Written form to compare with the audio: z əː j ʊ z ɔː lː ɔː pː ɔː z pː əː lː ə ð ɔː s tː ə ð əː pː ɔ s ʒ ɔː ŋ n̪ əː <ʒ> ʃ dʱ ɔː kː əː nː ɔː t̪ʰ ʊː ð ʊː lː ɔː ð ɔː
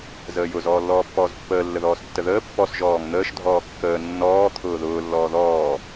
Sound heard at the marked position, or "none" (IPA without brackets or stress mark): none